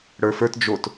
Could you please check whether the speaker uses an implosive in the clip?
no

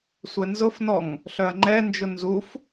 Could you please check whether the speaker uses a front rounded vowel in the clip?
yes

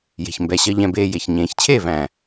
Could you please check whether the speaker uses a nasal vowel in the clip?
yes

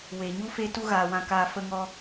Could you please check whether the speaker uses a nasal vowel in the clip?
yes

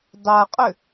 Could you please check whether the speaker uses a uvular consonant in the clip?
yes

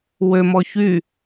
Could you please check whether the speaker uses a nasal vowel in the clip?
no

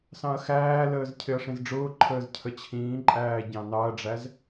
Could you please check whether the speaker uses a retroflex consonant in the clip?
yes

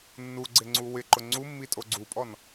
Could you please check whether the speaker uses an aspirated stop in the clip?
no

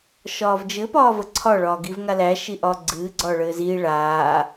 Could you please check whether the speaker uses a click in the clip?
yes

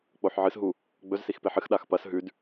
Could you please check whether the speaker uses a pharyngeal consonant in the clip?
yes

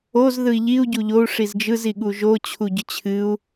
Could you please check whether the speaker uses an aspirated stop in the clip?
yes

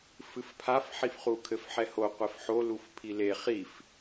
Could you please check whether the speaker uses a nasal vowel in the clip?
no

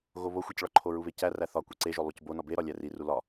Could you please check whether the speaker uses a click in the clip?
yes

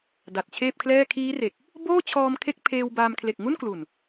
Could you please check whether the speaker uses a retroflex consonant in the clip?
no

